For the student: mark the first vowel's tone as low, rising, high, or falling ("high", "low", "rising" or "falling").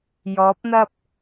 rising